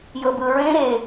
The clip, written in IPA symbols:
jɤbɯɹẽ ɾe

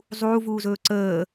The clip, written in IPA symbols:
zˤuːvuːzɵː ǀəː

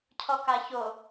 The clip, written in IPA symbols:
cʰɔkaço

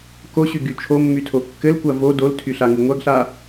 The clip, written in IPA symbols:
koɕyɡy t͡ʃʰomːytʰo kːɘlkʷa vo doltʰyɬaŋu ŋʷaɡɬa

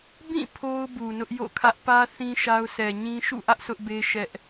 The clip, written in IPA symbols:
bĩ˦˨ pʰo˦ʊ̯ bu˨nʊ˦ʔjo̰˦˨kʰä˦ʔ pä˦ θĩ˦ ʃa˦ʊ̯ sʰɛ˨ɲĩ˦ ʃṵ˦˨ʔä˦ʔ sʰʊ˦ʔbe˦ʃɛ˦ʔ

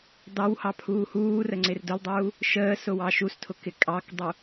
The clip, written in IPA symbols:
dɑwhɑ pʰuːhuːrə ŋ͡ǀɪrdʊldˤuː | ʃəː sʊwɑʃustʰʊ kɪkʼɑkdˤu

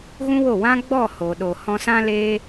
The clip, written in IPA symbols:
ɣũ˦wo˦˨ wã˦ ɡ͡bɔ˦˨ho˨ɗo˨ hɔ̃˧sã˦leː˦

